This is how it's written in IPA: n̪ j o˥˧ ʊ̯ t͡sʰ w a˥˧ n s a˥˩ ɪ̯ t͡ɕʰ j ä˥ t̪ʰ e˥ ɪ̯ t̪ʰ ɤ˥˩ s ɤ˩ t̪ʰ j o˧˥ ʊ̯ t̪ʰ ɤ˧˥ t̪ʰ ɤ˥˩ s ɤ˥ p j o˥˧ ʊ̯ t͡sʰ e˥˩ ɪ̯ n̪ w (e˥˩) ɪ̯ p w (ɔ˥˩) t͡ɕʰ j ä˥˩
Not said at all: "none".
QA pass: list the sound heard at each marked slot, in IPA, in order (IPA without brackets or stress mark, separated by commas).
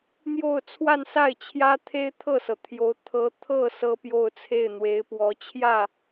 e˧˥, ɔ˧˥